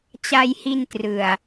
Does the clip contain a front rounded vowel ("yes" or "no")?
no